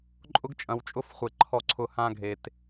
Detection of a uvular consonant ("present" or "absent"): present